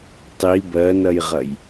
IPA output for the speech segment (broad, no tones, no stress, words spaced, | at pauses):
tˤi bɜnɐjʁɐj